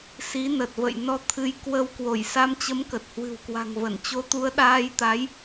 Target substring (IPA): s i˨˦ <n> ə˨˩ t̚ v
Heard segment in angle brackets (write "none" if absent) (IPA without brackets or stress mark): n